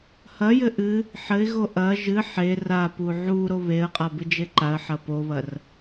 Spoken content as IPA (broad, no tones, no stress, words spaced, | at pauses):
hɐjɘ ʔɨ | ħɘɪ̯ɣo ʔɐ ʒɨ ħe rapu ʕuɾo βeə̯qʼa bɨd͡ʒeǃaə̯ħɐ poβɐr